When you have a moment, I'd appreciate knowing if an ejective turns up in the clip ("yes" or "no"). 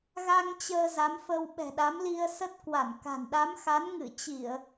no